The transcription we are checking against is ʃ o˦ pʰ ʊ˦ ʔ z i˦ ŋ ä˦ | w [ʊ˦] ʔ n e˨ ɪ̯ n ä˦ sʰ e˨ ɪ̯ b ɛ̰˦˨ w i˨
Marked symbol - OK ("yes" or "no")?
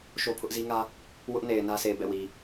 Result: yes